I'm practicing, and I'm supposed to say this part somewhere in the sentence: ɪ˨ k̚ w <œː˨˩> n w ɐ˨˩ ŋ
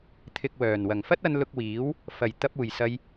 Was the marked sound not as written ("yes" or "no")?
no